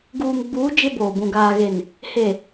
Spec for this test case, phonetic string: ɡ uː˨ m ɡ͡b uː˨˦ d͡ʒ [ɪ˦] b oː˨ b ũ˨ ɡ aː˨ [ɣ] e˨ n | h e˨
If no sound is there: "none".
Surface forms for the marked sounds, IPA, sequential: ɪ˦, ɣ

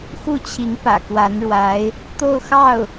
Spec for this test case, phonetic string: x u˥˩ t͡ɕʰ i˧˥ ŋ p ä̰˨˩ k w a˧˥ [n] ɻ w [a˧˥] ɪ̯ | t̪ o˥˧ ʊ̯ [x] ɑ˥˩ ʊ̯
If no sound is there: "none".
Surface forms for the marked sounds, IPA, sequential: n, a˧˥, x

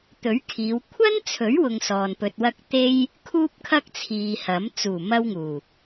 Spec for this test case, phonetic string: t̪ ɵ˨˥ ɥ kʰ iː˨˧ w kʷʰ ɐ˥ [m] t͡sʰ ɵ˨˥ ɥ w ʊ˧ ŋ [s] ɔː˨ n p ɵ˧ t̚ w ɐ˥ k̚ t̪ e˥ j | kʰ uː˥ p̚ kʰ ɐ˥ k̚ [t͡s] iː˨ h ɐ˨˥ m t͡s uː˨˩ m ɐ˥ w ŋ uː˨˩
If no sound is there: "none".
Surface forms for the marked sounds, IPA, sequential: n, s, t͡sʰ

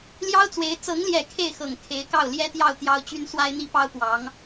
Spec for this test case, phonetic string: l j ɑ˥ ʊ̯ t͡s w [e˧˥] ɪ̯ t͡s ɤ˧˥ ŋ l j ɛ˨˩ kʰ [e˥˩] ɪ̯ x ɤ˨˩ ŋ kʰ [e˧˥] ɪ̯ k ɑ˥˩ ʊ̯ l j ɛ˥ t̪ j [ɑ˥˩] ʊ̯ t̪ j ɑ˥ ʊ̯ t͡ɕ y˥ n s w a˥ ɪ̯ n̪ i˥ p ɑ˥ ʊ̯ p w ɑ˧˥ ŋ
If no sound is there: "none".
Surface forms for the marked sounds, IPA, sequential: e˧˥, e˥˩, e˧˥, ɑ˥˩

